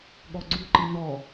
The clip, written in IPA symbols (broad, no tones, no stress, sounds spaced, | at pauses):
ɠ ɔ ɡ͡ǀ u ǃ i n̪ ɔ